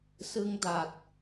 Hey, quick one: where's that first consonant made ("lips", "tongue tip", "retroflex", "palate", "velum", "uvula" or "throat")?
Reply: tongue tip